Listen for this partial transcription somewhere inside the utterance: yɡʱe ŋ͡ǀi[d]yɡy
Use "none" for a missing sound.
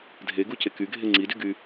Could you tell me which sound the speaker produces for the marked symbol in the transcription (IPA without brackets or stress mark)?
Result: d